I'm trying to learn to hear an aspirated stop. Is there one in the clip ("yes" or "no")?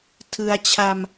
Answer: yes